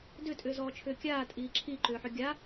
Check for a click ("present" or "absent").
present